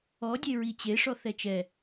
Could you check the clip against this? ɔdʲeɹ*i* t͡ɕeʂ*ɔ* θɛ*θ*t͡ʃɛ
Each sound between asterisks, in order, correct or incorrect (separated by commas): correct, correct, incorrect